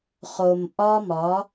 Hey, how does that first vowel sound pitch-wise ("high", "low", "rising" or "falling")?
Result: low